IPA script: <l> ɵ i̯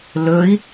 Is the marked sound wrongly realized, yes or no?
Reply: no